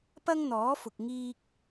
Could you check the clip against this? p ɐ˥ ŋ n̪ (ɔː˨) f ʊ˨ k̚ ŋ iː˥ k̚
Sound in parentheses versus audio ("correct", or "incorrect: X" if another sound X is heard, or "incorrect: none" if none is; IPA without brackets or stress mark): incorrect: ɔː˨˥